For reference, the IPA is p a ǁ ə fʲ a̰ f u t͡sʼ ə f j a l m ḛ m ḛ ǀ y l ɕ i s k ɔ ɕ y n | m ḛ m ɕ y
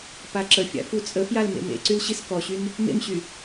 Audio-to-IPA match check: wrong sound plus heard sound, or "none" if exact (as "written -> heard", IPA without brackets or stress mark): none